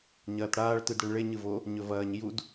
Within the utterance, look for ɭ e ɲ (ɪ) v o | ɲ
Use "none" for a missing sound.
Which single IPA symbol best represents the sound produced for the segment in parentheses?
ɨ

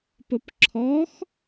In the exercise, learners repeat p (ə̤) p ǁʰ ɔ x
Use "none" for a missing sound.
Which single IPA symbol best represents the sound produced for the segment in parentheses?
ə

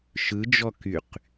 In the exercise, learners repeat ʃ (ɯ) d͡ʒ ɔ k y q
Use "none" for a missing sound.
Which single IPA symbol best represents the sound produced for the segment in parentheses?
ɯ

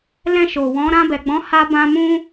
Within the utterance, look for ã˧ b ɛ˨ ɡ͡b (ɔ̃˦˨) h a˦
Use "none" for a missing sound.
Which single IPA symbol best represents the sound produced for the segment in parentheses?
ɔ̃˨˦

